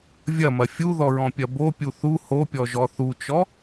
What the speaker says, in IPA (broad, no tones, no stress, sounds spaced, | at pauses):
vʲ ɐ m ɐ fʲ u ð ɔ ɹ ɔ̃ pʲ ɐ b o pʲ u θ u h o pʲ ɔ ʒ ɔ θ u t͡ʃ ɔ